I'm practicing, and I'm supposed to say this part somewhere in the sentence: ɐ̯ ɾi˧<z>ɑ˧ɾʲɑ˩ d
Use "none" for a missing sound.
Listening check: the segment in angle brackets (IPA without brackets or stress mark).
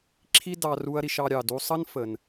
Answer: ʃ